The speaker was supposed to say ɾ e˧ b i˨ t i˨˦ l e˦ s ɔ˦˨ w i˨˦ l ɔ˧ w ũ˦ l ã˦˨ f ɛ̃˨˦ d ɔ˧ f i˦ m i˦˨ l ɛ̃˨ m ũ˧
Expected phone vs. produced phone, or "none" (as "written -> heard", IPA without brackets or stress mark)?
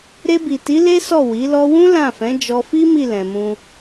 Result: d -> d͡ʒ